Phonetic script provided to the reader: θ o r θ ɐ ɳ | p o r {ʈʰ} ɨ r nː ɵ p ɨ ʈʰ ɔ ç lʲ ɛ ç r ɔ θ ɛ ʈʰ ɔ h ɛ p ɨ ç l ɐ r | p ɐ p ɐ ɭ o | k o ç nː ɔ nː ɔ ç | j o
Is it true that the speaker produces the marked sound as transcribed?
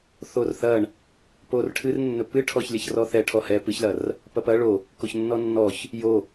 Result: yes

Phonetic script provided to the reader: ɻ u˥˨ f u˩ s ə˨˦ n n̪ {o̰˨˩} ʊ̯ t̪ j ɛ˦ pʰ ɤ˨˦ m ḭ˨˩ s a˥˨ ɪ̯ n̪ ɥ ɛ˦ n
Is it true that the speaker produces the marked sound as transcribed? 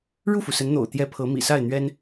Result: yes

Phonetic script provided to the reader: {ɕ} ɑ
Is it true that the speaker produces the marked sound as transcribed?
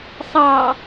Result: no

